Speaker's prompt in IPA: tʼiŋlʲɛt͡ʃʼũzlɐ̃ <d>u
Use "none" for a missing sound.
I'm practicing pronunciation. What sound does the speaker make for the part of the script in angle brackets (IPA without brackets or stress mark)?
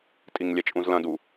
d